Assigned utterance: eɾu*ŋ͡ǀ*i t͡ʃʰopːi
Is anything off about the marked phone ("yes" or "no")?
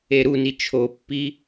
yes